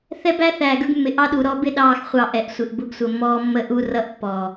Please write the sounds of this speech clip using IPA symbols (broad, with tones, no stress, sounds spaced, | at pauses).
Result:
θ ɛ˦ b æ˦ θ æː˨ ɡ ə˞˦ ɡ mː ɪ˨ ʔ ɑ˦ ɗ u˨ ɾ ɔ˦ b ɪ˦ ɗ ɑː˦ x χʷ ɑ˦˨ ʔ ɛ˨ ʔ sʷ ɪ˨ ʔ b ʊ˦ ɡ sʷ ə˨ mː ɔː˦ mː ə˦ ʔ u˦ r ʌ˦ ʔ pː ɔː˨